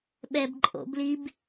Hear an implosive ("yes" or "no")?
yes